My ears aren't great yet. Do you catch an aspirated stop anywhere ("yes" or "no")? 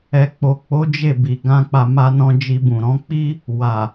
no